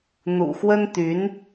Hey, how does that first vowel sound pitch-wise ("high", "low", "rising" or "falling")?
low